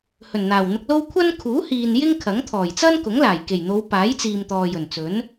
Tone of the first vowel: low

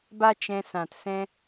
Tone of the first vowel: high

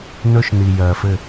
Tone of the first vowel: high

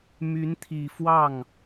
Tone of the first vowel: rising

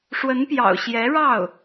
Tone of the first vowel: rising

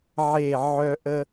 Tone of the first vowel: falling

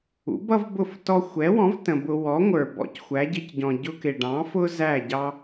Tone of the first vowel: rising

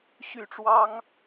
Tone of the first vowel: falling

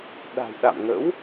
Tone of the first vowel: low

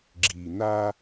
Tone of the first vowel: low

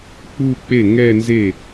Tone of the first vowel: falling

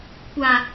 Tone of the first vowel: low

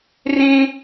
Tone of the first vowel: high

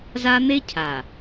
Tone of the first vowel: high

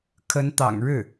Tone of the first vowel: rising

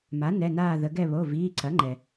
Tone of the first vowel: rising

